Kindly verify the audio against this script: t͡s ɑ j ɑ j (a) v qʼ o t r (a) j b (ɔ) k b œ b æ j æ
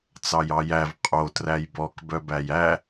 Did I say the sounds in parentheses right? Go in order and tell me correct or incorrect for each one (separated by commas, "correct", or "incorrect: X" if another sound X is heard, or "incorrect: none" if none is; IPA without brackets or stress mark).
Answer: incorrect: æ, incorrect: æ, correct